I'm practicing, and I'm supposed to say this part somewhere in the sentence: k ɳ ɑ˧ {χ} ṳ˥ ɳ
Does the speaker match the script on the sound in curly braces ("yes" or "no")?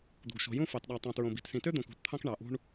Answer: no